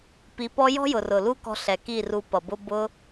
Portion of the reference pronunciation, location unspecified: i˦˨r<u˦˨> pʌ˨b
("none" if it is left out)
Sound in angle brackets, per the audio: u˧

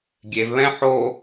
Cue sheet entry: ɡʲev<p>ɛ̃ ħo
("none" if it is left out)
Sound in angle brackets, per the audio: β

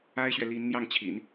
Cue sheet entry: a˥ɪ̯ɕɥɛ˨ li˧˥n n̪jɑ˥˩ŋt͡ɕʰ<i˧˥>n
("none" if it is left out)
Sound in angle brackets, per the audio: ḭ˨˩˦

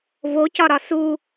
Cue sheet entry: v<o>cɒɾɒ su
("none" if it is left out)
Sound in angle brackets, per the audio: o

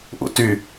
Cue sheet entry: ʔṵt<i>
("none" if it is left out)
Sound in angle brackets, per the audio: y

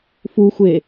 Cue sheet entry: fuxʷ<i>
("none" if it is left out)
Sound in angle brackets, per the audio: e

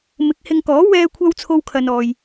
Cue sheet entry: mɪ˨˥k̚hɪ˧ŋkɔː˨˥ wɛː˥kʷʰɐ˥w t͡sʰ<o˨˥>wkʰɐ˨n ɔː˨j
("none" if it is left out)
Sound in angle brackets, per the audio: o˧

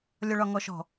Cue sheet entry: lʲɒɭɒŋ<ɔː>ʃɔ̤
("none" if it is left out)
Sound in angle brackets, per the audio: ɔ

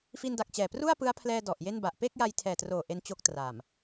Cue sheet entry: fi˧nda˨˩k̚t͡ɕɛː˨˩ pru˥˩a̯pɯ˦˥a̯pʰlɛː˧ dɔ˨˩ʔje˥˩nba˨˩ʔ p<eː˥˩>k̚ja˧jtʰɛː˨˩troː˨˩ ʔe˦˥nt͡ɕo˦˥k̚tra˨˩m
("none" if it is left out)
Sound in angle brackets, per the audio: e˥˩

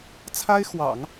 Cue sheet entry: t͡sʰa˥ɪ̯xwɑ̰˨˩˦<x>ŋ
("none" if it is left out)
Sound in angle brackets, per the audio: none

